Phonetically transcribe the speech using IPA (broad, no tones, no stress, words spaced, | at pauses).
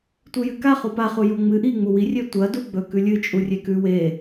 tʷɨjɨka χupa χujoŋ͡mɨ ʔi ŋ͡muwi rʲetʷɐ duɡ͡bɵ kʉlʲɨ t͡ʃʼurʲekʉ we